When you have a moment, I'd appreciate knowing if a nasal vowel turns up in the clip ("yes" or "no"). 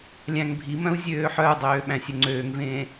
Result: yes